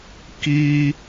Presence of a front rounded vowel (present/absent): absent